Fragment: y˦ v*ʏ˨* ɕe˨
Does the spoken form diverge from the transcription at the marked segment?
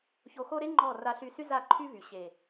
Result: yes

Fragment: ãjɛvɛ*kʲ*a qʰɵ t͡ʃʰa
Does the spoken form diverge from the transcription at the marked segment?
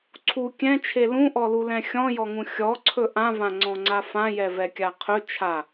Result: no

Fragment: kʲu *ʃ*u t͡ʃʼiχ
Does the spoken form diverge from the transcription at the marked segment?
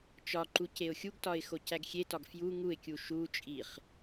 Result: no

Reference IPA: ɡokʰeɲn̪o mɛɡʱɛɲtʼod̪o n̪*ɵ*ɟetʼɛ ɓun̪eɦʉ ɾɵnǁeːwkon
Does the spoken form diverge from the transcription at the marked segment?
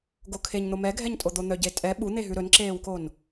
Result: yes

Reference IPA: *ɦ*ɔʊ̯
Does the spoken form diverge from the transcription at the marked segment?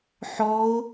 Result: yes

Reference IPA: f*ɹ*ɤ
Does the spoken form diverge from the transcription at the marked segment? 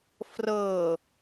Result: yes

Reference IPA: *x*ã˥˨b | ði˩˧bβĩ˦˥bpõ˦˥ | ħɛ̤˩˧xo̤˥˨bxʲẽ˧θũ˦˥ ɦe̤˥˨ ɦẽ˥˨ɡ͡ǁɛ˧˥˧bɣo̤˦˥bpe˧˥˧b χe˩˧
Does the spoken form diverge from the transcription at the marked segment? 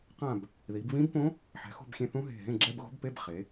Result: yes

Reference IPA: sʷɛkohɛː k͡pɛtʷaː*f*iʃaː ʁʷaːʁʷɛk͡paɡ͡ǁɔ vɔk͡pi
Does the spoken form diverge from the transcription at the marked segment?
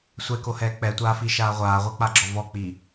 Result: no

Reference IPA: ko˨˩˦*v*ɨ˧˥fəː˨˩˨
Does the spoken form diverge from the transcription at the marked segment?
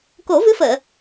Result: no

